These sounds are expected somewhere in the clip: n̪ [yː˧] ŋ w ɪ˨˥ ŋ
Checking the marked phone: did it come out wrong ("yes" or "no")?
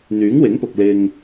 yes